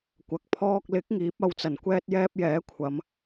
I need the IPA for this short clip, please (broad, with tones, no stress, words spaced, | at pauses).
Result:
kʷɐ˨k̚pʰɔː˧k̚lɪ˨˥k̚ ŋiː˨˥p̚ɐ˧wt͡sɐ˨˩n kʷɛː˥t̚jɛː˥p̚ jɛː˨˥kʷʰɐ˨˧m